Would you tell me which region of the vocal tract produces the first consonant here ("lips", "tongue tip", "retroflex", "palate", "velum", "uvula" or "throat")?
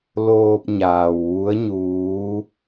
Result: tongue tip